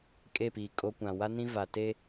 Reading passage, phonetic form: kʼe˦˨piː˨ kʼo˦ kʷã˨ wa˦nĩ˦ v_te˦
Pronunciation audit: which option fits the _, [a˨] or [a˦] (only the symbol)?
a˨